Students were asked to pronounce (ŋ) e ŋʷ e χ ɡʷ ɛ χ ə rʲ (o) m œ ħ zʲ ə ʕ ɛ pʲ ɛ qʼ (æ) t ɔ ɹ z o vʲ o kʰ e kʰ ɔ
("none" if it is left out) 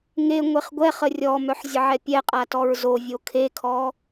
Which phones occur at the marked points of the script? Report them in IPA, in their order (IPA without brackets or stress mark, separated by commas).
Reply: ŋ, ɔ, a